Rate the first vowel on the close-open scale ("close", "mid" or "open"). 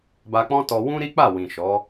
open